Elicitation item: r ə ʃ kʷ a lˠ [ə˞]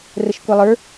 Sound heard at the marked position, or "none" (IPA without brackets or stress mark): ə˞